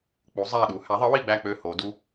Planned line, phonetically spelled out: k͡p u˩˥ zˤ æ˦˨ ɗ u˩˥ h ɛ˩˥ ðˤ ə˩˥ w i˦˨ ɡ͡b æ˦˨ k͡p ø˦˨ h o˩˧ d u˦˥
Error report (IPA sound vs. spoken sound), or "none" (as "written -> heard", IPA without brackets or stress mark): ɛ˩˥ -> æ˩˥